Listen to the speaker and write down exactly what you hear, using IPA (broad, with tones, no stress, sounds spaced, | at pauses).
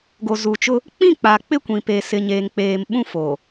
ɡ o˨ z u˨ t͡ʃ ʊ˦ | k͡p ĩ˦˨ k͡p a˨ k͡p ɪ˦ kʷ ĩ˨ p e˨ s ɪ˨ ɲ eː˨ ŋ k͡p eː˨ m ɓ ũ˦ f o˨